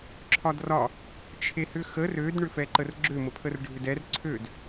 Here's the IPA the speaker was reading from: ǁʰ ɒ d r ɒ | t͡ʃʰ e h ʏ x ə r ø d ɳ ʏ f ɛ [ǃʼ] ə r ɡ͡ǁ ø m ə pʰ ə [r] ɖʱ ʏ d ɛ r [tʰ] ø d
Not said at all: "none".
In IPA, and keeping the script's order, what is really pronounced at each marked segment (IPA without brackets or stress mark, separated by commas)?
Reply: ǃ, r, ǀʰ